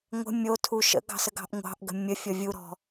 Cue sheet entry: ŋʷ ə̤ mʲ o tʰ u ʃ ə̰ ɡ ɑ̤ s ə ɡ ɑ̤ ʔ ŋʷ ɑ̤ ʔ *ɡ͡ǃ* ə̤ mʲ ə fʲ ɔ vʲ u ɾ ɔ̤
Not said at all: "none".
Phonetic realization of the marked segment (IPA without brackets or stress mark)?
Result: ɡ